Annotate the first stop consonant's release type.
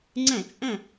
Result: click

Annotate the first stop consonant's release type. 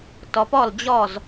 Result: plain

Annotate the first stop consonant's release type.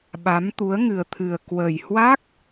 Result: implosive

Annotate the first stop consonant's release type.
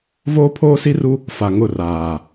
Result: aspirated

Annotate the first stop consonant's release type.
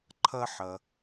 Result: click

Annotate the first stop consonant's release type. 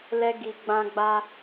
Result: plain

